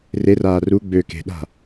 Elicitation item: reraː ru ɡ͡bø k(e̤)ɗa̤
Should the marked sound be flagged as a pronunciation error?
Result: no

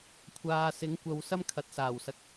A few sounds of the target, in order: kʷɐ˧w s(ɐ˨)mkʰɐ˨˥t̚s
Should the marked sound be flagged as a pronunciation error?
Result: yes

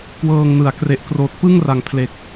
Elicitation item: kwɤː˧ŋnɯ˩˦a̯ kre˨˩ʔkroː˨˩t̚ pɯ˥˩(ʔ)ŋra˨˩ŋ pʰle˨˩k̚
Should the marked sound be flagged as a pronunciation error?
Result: yes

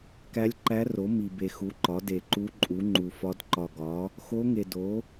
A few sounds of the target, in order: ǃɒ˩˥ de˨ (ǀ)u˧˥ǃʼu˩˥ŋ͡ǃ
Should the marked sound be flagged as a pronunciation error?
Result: yes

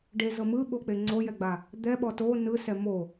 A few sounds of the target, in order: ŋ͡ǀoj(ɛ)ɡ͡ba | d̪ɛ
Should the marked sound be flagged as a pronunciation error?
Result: no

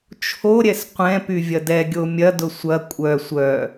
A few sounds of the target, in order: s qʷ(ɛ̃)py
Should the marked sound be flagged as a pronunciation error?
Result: no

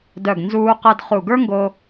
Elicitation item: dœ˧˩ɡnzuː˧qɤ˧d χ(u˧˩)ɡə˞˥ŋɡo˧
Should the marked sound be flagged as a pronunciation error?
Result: no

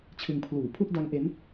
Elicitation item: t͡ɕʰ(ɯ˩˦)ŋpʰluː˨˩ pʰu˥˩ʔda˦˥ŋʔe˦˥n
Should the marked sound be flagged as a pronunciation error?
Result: yes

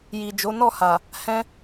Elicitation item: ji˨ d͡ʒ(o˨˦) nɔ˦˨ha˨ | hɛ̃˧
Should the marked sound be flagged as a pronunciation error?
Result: no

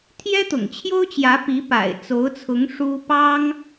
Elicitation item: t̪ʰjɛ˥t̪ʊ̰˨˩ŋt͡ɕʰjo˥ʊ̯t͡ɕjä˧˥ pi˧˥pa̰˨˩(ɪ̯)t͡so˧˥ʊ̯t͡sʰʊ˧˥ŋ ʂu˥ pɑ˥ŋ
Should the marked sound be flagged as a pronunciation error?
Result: no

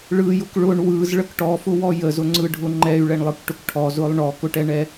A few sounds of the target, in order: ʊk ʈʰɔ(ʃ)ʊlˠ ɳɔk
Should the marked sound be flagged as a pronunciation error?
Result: yes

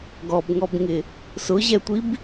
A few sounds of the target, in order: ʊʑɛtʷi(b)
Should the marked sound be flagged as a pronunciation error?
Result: no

